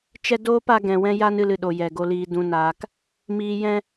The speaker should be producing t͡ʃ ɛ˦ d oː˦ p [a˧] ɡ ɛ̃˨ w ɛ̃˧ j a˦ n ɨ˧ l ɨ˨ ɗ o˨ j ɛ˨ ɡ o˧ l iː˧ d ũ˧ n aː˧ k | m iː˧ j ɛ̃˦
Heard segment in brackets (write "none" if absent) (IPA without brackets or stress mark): a˧